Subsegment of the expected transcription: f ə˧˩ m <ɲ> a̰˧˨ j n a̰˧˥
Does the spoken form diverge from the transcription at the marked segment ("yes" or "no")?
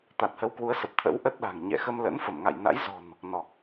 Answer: yes